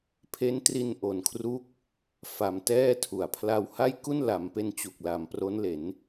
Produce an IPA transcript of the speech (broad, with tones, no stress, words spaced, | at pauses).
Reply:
pʰe˦˥ntri˧n ʔo˩˦nkʰru˦˥k̚ | fa˧mtɛː˥˩tʰu˨˩a̯ pʰla˧wha˥˩jku˥˩n la˩˦mpe˧n t͡ɕu˨˩k̚la˨˩m pro˦˥nle˩˦n